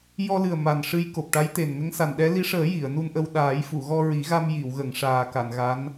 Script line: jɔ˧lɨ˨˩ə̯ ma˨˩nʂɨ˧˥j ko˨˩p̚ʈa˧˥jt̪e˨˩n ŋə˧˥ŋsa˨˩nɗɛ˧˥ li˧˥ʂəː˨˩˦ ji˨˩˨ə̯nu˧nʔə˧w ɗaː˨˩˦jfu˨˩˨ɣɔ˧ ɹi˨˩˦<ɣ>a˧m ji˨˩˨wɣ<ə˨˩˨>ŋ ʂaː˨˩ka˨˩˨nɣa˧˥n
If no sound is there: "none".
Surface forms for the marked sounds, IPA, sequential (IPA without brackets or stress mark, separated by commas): ɣ, ə˨˩˨